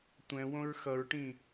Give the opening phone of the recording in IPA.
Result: tʷ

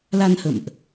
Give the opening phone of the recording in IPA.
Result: l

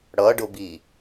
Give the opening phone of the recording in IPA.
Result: ɽ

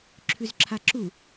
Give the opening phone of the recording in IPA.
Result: ǁʰ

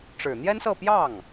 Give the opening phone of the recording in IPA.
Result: ʈ͡ʂ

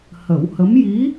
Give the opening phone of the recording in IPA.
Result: h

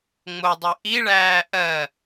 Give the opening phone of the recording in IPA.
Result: ŋ͡m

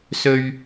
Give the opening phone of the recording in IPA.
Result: s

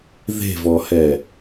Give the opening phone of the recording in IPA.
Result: ð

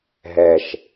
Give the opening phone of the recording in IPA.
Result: ɦ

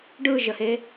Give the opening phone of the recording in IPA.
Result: ɖ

